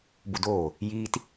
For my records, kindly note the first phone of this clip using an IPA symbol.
b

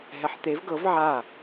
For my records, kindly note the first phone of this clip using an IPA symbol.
ɦ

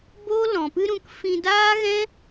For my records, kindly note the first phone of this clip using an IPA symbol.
b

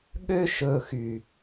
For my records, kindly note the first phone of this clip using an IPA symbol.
ɠ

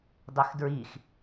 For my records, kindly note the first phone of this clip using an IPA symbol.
dˤ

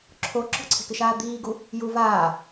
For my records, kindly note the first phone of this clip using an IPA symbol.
ǁʰ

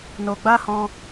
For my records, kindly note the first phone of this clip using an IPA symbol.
n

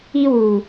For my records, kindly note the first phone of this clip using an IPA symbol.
i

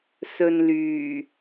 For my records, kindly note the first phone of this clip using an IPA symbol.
s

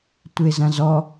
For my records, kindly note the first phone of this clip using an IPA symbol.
tʷ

